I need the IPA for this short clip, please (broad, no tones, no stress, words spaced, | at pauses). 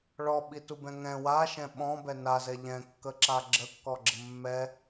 ɭɔɓitubɛ̃ ŋɛ̃ waʃɛ̃ ɓɔ̃bɛ nazɛ ʎɛ̃kːəǁa ɡ͡ǁəkːɔɡ͡ǁə mːɛ